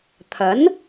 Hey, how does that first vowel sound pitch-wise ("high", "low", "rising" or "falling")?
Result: rising